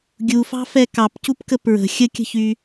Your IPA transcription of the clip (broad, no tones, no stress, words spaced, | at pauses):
ɡʲufɑ̤fɛ kɑpcupkə pɹə̤ xʲəkʲə̤çy